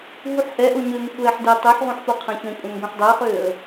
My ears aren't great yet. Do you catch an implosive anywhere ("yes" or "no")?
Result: no